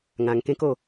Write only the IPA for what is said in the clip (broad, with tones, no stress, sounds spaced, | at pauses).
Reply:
ŋ ã˧ ŋ k ẽ˦ k o˥˧